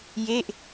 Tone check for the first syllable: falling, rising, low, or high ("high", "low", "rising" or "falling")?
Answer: falling